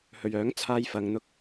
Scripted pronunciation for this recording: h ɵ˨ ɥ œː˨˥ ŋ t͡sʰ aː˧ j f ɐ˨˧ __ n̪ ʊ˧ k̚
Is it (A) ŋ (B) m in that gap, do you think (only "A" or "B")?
A